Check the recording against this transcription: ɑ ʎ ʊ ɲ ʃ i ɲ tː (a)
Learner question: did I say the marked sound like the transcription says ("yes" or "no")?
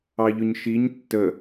no